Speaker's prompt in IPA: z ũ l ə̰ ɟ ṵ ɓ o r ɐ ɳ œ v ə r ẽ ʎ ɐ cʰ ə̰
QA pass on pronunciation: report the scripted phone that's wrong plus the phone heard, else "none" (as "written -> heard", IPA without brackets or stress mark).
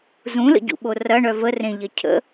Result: none